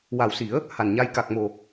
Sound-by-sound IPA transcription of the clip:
wa˨˩wsi˨˩˦ə̯ | ha˨˩nɲa˧j ka˨˩k̚mo˨˩

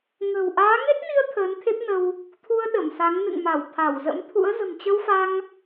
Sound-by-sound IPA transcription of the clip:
ŋə̤˨˩w ʔaː˨˦ŋe˦˥t̚ni˧ə̯ t̪ʰəː˨˦nt̪ʰe˦˥p̚nə˧w | t̪ʰu˧ə̯ ɗə˧˩msa˨˦ŋ nɨ̰˧˨ŋma˧˩w t̪ʰa˧˩wzə̰˧˥mt̪ʰṵ˧˥ə̯ zə̤˨˩mt͡ɕə˧wfa˧ŋ

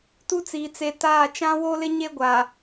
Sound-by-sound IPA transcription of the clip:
tu˦t͡siː˨ t͡se˨ taː˦˨ t͡ʃã˦wo˦lɪ˦ ɲe˦ɡʷa˨

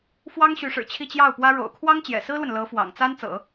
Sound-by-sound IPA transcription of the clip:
fwɑ˥ŋɕy˧˥ʂɻ̩˨˩ t͡ɕʰi˥˧t͡ɕjɑ˥˩ʊ̯pwä˥ ɻo̰˨˩ʊ̯ kʰwɑ˥ŋt͡ɕjɛ̰˨˩sɹ̩˥lwə˨n lɤ˧˥fwɑ̰˨˩ŋt͡sa˥n t͡sɤ̰˨˩˦

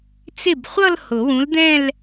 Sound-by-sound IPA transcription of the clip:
t͡sɪ˥˩bχʷʌ˥˧l hʊ˨˩˦wũ˨˥ld̪ɛ̃˥˧l

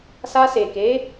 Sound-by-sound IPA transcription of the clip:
sa˧se˨ke˨˦

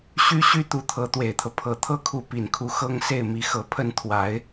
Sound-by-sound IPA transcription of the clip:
ɕy˥ɕy˥ t̪u˧˥t̪ʰɤ˧˥ t̪we˨˩ɪ̯t̪ʰɤ˦ pʰɤ˨˩t̪ʰɤ˥kʰu˧˥ pi˨˩nkʰu˧˥ xɤ˥ŋ se˥˩ɪ̯mi˧˥xɤ˧˥ pʰə˥˩nt̪ʰwa˧˥ɪ̯

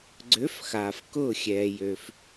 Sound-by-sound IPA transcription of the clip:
ɡ͡ǀø˨˥fxaː˩f kʊː˧˩ xʲɛː˩jø˩f

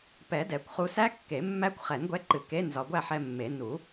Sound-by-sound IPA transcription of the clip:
pɛ˨˩˦dɛ˨˩˦kʷ χu˧sæ˦˥kːe˨˩˦ mːæ˦˥kʷ χɛ˨˩˦nɡʷɛ˧ǃɨ˨˩ ke˧˥˧n zɒ˧ ɡʷæ˥˨ħɛ˧mːe˨˩˦ nu˨˩˦

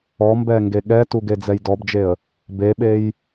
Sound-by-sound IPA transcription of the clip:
ɔmbɛ ŋɡeɠɛtu ɡed͡zɛjdɔbd͡ʒeə̯ | beɓej

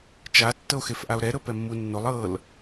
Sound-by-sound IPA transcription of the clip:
t͡ʃa tːɤo̯xefʔao̯ɾɛ ɾɤpɛmːunːolˠ ɤl

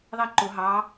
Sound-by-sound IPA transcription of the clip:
ðˤiǃʊ ɦɑ

